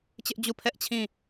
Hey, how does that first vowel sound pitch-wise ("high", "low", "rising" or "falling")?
high